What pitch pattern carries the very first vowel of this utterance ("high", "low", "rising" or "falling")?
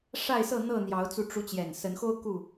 falling